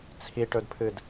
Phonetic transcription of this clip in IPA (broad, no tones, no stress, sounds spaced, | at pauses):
t͡sʰ i ʈ ɵ d pʰ ɨ d